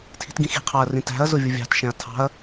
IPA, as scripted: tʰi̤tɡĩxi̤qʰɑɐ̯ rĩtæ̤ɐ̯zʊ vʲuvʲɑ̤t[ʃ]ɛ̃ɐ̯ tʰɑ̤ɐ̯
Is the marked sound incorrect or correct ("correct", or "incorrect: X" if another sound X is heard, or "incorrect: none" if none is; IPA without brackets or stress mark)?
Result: correct